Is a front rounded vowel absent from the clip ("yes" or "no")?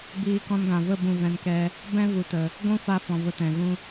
yes